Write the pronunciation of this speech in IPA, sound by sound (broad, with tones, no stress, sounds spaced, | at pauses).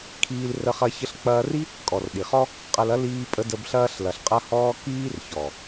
kʰ iː˧ l r ə˧ χ ɐ˧ ç ə˧ ɬ k͡p ɐː˧ r i˦ | kʼ ɔ˨ r ɗ i˨ χ ɔ˦ | qʼ ɐ˧ l ɐ˦ l iː˧ pʼ ə˧ d ə˧ b ɬ ɐː˦ ɬ l ɐ˨ ɬ qʼ ɐ˦ h ɔː˦ k iː˦ r ç ɔ˨